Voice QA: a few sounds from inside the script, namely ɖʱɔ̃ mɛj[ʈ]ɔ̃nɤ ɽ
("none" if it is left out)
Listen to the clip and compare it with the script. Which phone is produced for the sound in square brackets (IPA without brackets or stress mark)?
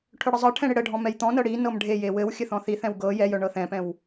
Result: t̪